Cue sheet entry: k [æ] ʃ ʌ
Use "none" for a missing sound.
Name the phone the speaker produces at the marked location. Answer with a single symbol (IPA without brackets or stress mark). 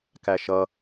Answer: æ